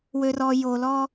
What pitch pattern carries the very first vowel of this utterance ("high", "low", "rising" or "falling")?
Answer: low